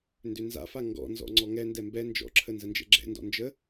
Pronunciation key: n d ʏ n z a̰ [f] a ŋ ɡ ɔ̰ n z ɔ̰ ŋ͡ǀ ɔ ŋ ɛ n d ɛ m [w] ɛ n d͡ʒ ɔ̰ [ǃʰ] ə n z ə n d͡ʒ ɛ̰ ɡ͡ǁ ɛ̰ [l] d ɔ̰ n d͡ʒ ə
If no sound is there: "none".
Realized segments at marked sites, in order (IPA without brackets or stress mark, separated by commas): f, b, ǁʰ, n